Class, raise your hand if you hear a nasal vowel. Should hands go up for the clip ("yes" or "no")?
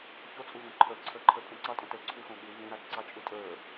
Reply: yes